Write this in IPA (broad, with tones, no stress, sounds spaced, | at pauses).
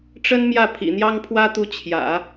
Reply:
ʈ͡ʂ ə˥ n m j ä˥˩ pʰ ḭ˨˩ n̪ j ɑ˥ ŋ pʰ w ä˥ t̪ u˧˥ t͡ɕʰ j ä̰˨˩˦